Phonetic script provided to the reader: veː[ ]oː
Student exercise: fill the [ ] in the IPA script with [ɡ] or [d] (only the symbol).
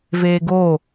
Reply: ɡ